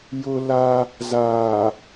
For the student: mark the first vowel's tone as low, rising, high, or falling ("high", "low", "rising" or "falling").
high